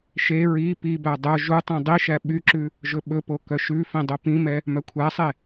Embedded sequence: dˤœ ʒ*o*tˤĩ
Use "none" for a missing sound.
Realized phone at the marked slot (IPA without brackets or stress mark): u